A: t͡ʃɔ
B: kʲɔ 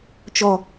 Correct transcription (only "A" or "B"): A